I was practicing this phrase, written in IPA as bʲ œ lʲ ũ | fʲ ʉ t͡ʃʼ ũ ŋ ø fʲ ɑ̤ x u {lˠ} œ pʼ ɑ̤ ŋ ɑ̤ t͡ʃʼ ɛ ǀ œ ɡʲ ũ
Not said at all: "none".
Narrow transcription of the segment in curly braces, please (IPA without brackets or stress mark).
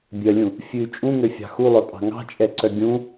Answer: lˠ